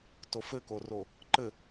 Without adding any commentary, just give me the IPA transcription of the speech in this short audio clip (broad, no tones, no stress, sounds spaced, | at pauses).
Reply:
t o f ɘ k o r o | ǃ ɘ